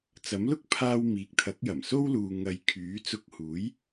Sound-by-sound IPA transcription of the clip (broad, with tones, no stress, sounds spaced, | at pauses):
t͡s ɐ˨˥ m l ʊ˥ k̚ pʰ aː˧ w m iː˨ k̚ t̪ʰ ɐ˨˥ k̚ j ɐ˨˩ m s o˥ w l uː˨ ŋ ɐ˨ j kʰ yː˨˥ t͡s ʊ˧ k̚ h uː˨˥ j